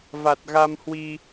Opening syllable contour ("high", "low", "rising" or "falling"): low